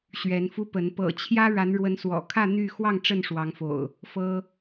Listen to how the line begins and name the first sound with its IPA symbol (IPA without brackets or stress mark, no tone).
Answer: ɕ